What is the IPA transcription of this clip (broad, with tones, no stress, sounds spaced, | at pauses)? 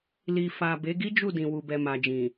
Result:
l i˨ f a˨ b e˨˦ ɡ i˦ d͡ʒ u˦˨ d ĩ˨ w u˨ b ɛ˨ m a˨ d͡ʒ ĩ˨